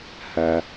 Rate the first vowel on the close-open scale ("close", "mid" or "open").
open